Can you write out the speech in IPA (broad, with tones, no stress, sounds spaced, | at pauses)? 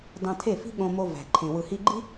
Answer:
d ɑ̃˨ tʰ e˦˨ f i̤˦ ɠ õ˧ m o˧ v æ̤˨ ǃʰ ẽ˨ w ɯ˨ h i˧ ɡ͡ǃ i˦